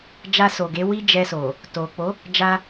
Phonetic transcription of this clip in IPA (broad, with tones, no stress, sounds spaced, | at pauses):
d͡ʒ a˧ s o˨ ɡ e˨˦ w i˦ d͡ʒ ɛ˧ s o˨ | t o˨ k͡p o˨˦ | d͡ʒ a˧